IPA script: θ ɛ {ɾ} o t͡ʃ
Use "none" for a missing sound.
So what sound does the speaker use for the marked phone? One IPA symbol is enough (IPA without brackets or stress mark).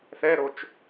ɾ